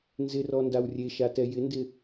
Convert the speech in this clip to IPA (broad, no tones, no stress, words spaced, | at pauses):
nzɪrɔ ndawrʲeʃatɛ jɪndɪ